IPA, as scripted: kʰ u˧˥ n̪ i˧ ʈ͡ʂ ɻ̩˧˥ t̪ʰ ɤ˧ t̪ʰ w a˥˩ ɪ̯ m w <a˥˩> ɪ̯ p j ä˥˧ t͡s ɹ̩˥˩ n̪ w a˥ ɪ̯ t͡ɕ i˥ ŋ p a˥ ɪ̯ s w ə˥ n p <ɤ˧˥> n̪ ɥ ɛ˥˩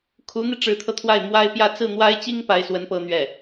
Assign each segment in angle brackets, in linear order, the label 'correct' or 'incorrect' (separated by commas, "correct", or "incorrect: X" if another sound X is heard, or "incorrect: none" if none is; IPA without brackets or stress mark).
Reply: incorrect: a˥, incorrect: ɤ˥